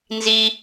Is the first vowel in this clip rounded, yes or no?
no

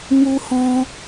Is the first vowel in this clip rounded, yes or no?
yes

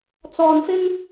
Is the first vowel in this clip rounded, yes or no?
yes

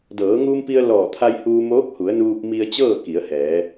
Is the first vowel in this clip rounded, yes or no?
no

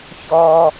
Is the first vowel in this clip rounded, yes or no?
yes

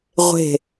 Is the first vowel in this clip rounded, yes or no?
no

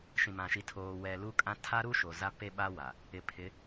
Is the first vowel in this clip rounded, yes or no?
no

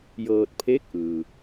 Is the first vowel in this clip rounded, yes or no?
no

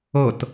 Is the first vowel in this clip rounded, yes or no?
no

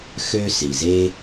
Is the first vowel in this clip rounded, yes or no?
yes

